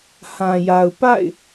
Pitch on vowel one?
low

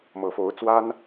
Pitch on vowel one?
low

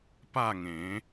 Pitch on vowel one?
falling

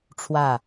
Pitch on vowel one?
falling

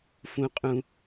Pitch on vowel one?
high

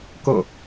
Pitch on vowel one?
falling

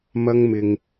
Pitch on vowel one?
high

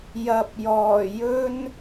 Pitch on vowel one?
low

